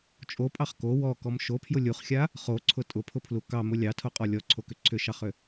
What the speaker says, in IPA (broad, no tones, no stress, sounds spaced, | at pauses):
t͡ʃʼ o pʼ ɑ χ k o w ɔ k ɔ m ʃ o pʰ j ʊ lʲ u χ xʲ a | χ o ǀʰ ʊ tʼ ʊ pʰ ʊ pʰ l u k ɑ m ʊ lʲ ɑ tʰ o qʼ ɔ lʲ ɔ ǀʰ o k ʏ ǀʰ ʏ ʃ ɑ χ ʏ